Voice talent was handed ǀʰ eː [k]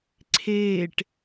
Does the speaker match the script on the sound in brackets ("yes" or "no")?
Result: no